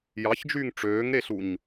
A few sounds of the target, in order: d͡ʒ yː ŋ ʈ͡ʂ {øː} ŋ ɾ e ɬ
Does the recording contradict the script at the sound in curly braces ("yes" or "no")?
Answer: no